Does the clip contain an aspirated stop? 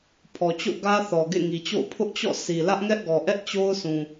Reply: yes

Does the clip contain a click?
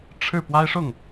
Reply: no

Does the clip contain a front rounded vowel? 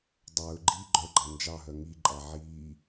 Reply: yes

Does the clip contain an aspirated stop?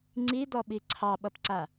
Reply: yes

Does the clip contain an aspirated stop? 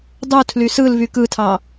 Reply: yes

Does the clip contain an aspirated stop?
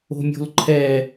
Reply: yes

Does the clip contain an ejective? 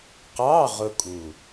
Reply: yes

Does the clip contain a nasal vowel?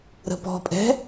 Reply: no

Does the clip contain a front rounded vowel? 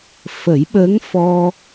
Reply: no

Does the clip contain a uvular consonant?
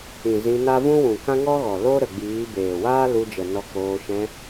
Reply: no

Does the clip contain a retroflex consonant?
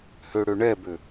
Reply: yes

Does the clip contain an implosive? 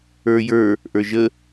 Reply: no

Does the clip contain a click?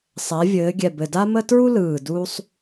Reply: no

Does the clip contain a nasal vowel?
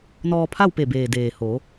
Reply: no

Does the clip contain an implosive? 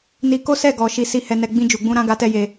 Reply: no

